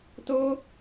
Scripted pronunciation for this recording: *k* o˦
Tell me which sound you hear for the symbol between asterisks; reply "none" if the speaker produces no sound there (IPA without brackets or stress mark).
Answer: t